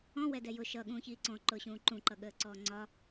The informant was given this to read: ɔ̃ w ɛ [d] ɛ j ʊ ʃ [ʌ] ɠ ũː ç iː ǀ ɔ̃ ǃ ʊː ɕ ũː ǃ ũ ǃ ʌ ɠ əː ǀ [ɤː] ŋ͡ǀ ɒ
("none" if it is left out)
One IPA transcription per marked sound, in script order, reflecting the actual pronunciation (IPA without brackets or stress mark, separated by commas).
d, ʌ, ɔː